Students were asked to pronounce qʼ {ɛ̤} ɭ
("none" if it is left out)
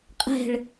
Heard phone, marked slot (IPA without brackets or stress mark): ɛ̤